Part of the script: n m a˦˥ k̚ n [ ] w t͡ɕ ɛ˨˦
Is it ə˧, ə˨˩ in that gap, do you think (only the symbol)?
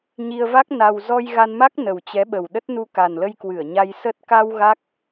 ə˨˩